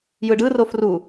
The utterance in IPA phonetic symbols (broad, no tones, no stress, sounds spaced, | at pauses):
j ɯ ɖ ɯ r o f r u